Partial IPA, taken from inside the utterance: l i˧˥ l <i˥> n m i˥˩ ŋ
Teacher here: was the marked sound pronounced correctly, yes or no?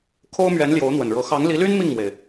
no